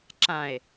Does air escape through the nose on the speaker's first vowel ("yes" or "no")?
yes